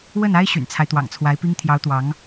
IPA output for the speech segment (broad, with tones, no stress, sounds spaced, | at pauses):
w ə˥˩ n a˥ ɪ̯ ɕ y̰˨˩ n t͡sʰ a˦ ɪ̯ t̪ w ɑ̰˨˩ ŋ t͡sʰ w a˧˥ ɪ̯ p i˥ ŋ t̪ʰ j ɑ˧˥ ʊ̯ t̪ w ɑ˧˥ ŋ